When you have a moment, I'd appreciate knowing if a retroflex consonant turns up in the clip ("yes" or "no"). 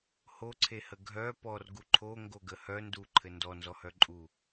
no